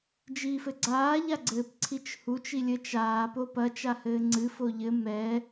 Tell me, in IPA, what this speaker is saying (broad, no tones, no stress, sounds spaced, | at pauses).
d͡ʒ iː f ɘ ɡ͡ǀ aː ʎ a ɡ͡ǀ ɘː p ǀʰ i t͡ʃ h u t͡ʃ i lʲ ɘ t͡ʃ aː p o p ɐ t͡ʃ a h ɘː ŋ͡ǀ ɨ f o ʎ ɘ m ɛː